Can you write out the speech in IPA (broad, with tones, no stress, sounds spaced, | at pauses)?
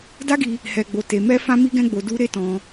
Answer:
d a˦ ɡ i˧ | h ɛ˧ ɡ͡b o˧ t e˧ m ɛ˦ f ã˦ m i˦ ɡ ɛ̃˦ ɡ͡b o˧ d u˦ ɾ e˦ t ɔ̃˧